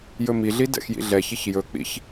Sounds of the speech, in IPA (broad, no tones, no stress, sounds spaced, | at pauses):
j ɵ m i ɮ i d ɛ̰ x j ḭ ɮ ɛ ç i ç j ɵ k͡p ḭ ç